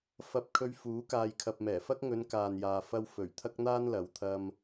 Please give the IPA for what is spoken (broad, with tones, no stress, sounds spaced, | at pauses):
f ɐ˧ p̚ kʰ ɵ˧ ɥ f uː˨˥ k aː˨ j kʰ ɐ˨ p̚ m ɛː˨˩ f ɐ˥ k̚ ŋ ɵ˨˧ n k aː˨ n j aː˨ f ɐ˧ w f ɵ˨˩ ɥ t̪ʰ ɐ˥ k̚ n̪ aː˥ n l ɐ˨˧ w t̪ʰ ɐ˧ m